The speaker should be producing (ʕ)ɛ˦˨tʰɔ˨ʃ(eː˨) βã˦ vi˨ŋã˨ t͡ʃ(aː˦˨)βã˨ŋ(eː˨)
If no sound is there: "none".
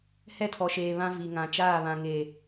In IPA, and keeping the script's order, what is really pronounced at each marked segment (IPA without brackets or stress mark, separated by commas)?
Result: h, eː˨, aː˦˨, e˨